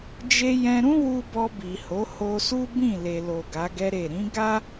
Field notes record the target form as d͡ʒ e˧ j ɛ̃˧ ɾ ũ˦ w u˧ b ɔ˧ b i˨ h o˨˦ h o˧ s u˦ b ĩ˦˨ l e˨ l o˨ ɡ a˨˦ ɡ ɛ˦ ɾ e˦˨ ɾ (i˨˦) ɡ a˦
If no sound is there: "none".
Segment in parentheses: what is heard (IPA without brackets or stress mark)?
ĩ˨˦